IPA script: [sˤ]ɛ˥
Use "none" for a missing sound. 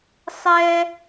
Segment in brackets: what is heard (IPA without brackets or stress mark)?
sˤ